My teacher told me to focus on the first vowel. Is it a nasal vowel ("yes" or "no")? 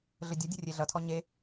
no